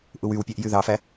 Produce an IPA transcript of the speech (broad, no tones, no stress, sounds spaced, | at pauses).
ʔ u w y w pʲ æ ʔ j y ð ɑ f æ